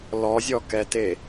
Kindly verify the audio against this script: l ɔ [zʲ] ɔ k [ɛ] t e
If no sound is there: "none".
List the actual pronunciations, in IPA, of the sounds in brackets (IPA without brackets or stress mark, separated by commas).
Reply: zʲ, ɛ